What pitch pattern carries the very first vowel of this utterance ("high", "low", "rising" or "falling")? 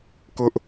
high